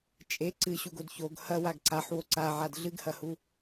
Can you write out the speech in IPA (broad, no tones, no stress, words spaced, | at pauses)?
t͡ʃʼe ǀɨɕuɡod çoɡ hɐ waɡǀaħ woǀaʕad ɮɨɡhɐhu